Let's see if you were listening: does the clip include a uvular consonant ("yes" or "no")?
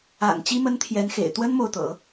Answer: no